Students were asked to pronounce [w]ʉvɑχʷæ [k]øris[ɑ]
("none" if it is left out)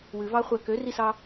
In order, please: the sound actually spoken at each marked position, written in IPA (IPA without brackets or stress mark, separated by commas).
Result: w, k, ɑ